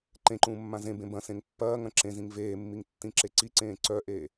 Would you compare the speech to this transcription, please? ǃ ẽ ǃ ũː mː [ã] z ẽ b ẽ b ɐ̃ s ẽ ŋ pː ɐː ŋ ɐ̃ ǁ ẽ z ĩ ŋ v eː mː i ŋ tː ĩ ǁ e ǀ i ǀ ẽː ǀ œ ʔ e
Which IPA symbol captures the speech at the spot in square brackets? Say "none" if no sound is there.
ã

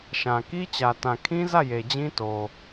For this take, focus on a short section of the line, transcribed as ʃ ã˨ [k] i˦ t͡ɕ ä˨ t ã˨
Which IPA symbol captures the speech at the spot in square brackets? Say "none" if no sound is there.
k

